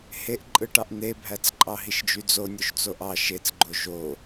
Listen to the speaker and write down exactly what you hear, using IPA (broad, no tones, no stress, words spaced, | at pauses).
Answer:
heʔǃʼɯʈɑʔ n̪ebʱæt͡s ǃʼɑɦiʃd͡ʒyd͡zo nʲoʃt͡soʔɑ ʃet͡sɡ͡ǃo ʒo